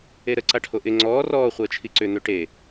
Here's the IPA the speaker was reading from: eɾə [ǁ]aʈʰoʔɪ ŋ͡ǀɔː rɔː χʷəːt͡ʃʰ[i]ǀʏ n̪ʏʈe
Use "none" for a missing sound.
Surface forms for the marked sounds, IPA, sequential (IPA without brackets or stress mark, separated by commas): ǀ, i